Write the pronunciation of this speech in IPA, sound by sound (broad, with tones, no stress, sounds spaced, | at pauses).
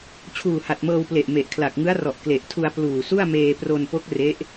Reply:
t͡ɕʰ uː˨˩ h a˨˩ t̚ m ɤː˧ w p l e˨˩ ʔ m e˨˩ ʔ kʰ l a˨˩ k̚ ŋ ɯ˦˥ a̯ r ɔ˨˩ ʔ k l e˨˩ ʔ tʰ u˧ a̯ p l uː˨˩ s u˥˩ a̯ m eː˧ p r o˧ n p o˦˥ k̚ r e˦˥ ʔ